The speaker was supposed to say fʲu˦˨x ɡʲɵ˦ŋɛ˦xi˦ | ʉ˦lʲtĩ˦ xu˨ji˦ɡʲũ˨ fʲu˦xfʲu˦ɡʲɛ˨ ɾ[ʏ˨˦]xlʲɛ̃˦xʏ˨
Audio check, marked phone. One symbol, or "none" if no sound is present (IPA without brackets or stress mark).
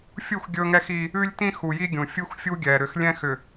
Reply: ʏ˨˦